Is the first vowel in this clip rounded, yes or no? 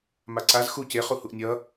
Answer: no